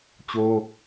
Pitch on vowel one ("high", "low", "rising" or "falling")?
high